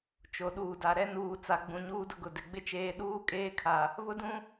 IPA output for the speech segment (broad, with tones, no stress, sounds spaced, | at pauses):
t͡ʃ o˨ ɗ uː˨ d a˨ ɾ ɛ˦ n uː˨ t͡s a˨ ɡ͡b ũ˨ ɲ uː˦ d ʊ˦ ɡ ʊ˨ d ɪ˨ ɡ͡b ɪ˦ t͡ʃ eː˦ ɗ uː˦ kʼ eː˦ kʰ a˨ | β ʊ˦ d ũ˦